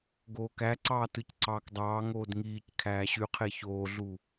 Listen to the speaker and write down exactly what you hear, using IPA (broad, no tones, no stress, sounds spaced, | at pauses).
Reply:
ɡ oː k æ ǀ ɑː t ɯ c ǀ ɑː k dˤ ɑː ŋ oː d ŋ iː c kʰ æː ɕ y qʰ e ç oː ɮ u